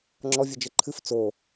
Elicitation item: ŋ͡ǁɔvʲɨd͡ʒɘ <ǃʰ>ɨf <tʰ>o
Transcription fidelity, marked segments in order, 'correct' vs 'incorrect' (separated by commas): correct, incorrect